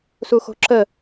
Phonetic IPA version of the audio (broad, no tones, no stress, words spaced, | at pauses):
suxo̤ǁə